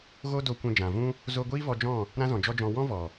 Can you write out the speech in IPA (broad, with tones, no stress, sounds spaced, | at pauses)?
ɣ o˦ d o˧ kʷ ɛ̃˧ d͡ʒ ã˨ v ũ˦ | z o˧ ɡʷ iː˦ v ɔ˧ d͡ʒ ɔ̃˦˨ | ɾ ã˦ z ɔ̃˨ d͡ʒ ɔ˦ d͡ʒ ɔ̃˧ w ɔ̃˦ v ɔ˨